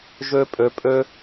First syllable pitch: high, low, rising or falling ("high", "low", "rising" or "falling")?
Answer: high